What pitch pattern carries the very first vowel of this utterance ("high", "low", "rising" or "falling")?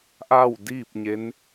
falling